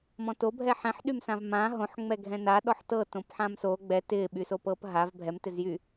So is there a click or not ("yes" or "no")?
no